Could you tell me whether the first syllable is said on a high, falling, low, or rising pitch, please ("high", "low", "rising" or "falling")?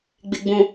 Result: low